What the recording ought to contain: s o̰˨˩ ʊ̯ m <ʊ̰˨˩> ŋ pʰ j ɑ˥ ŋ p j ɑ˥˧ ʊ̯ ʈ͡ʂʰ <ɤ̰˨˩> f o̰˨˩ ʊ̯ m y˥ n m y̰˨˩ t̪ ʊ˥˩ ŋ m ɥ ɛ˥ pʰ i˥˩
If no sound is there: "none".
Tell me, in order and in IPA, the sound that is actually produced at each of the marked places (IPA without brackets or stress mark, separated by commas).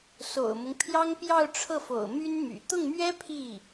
ʊ˦, ɤ˥˩